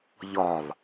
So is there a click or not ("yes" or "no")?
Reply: no